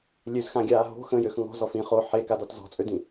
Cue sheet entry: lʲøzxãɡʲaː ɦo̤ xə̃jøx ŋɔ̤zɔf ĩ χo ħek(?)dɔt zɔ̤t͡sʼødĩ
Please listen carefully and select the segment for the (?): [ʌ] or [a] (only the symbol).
a